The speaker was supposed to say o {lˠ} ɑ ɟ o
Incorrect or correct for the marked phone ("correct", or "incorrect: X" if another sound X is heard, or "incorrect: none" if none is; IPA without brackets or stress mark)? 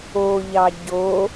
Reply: incorrect: ʎ